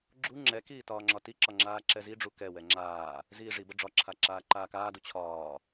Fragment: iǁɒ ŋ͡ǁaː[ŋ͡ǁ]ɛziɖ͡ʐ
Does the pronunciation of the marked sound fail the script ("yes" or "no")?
yes